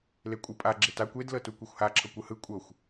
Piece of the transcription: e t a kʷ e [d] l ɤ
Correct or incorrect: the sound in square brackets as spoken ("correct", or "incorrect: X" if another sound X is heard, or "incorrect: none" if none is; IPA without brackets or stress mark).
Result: correct